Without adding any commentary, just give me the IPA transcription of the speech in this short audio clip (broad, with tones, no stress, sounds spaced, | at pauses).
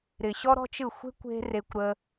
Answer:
ɾ ɪ˨ ɕ ɔ˦ ɾ ɔ̤˦ t͡ʃ ɯ˦˨ xʷ e̤˦ kʷ e̤˦ r e˧ kʷ ɾ ə˧